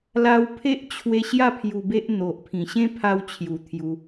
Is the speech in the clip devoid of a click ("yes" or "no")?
yes